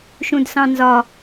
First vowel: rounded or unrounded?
rounded